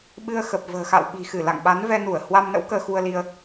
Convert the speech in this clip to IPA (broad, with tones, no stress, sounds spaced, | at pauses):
ɓ ɨ˧ ə̯ x ə˨˩ p̚ v ə̤ː˨˩ x a̰˧˨ w ɓ i̤˨˩ x ɨ˧˩ l a̰˧˨ ŋ ɓ a˨˦ n v ɛ˧ n u˧˩ ə̯ h w a˧ m n ə̰˧˥ w k əː˧ x u˧ ə̯ l i˧ ə̯